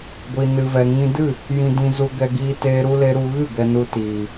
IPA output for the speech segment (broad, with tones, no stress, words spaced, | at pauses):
ɡʷi˨nɨ˨vɛ˨ ŋĩ˧dɨ˦˨ | jĩ˧dĩ˧zu˧ ɡɛ˧ɡiː˧ teː˧ɾu˧le˧ ɾu˧ ɣɨ˦˨ ɡɛ˨nu˨ tiː˨